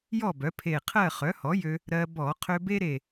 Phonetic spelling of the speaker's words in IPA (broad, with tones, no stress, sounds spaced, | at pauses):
j ɔ˥˨ b œ˩˥ pʰ e˧˩ qʰ ɜ˥˨ χ œ˩˥ h ɔ˩˥ j ø˧ | ɾ ɜ˧ b ɔ˧˩˧ qʰ ø˧ b e˥ ɾ e˧˩